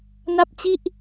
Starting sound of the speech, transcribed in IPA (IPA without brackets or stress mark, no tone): n